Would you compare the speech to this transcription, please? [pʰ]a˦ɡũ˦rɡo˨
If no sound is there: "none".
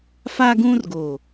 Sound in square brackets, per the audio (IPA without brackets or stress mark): f